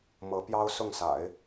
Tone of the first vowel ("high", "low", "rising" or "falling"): rising